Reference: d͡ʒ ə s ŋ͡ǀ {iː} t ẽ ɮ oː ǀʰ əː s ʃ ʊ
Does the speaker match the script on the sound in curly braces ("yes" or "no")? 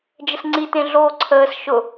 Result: no